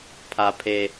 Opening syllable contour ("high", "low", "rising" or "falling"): low